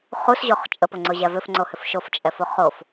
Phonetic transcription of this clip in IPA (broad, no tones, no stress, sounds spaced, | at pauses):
χ u s ʑ o χ t͡ʃʼ ə p ʊ ŋ͡ǀ ʊ ʑ æ v ʏ f ŋ͡ǀ o h ʏ f ʃ o f t͡ʃʼ ɛ f o χ o f